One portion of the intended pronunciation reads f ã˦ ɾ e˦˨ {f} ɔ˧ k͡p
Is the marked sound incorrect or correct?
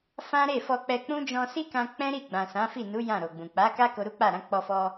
correct